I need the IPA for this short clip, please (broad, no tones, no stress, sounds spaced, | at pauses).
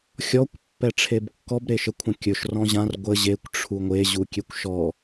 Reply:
xʲ ɔ kʷ pː ɛ ʈ͡ʂʰ e b kː ɔ b ɾ e ʃ ə kʷʰ ə̃ kʲ ɵ ʃ r ɔ̃ ʑ ã r ɡʷ ə ʑ e kʷ ʈ͡ʂʰ u ŋʷ e ʑ u kʲ e kʷ ʃ ɔ